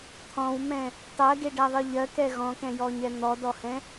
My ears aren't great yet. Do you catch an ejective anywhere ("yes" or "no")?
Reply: no